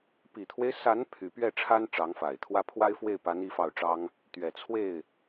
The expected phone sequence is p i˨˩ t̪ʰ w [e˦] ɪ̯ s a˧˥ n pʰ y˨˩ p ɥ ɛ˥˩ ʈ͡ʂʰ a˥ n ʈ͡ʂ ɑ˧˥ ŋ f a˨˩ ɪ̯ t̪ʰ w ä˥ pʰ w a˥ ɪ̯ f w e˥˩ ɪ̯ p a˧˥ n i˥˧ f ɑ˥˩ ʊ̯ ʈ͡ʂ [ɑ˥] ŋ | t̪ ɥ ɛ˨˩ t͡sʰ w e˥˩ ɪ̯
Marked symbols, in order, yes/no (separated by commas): yes, yes